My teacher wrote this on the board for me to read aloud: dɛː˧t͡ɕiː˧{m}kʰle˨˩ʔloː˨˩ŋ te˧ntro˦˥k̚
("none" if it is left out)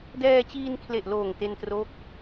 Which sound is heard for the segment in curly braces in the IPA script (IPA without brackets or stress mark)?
n